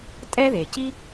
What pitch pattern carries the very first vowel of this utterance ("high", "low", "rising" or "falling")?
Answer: high